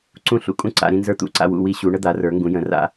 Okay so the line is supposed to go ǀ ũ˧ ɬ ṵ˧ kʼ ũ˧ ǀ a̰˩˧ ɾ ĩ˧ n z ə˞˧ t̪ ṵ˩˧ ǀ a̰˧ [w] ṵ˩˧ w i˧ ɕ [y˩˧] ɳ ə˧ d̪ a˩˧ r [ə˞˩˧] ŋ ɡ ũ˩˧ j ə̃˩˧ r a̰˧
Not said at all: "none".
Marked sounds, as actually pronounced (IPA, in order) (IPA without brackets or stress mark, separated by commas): w, u˩˧, ə˞˩˧